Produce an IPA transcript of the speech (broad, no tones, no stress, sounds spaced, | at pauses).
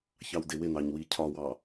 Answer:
ç ɑ w d ɪ w ɪ n ɑ ɲ w i cʰ ɒ w ɑ